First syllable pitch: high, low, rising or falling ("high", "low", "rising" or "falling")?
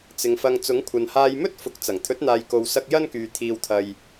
low